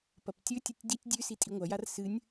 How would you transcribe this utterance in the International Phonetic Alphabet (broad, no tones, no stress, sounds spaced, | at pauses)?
p ɐ p tʲ ɵ tʲ ɨ tʲ d i tʲ dʲ ʉ s i tʼ i ŋʷ a j a r s ɨ nʲ